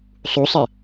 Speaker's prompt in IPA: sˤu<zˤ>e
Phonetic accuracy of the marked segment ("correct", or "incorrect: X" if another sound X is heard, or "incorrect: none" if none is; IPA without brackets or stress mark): incorrect: sˤ